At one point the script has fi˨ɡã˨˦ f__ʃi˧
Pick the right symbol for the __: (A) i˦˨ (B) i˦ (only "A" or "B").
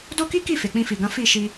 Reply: A